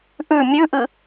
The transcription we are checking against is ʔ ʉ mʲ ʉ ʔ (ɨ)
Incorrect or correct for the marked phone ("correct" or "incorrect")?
correct